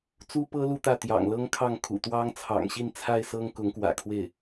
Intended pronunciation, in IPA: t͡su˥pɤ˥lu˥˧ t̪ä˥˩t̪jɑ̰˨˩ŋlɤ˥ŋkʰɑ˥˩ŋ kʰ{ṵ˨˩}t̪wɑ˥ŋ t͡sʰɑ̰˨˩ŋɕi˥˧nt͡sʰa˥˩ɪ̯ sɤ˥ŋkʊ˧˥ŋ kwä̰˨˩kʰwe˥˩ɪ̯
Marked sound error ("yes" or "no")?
no